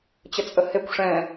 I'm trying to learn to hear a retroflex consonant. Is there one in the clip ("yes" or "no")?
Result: yes